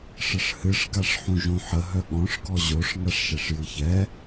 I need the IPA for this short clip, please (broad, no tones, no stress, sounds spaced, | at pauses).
ʂ ə ʂ h ɨ ʂ ɡ a ʂ ħ ũ ʒ õ ħ ə ɦ œ ɠ ɔ̃ ʂ ɡ ɔ ʑ o ʂ ŋ a ʂ ʃ ɛ ʂ j ɨ ç ɛ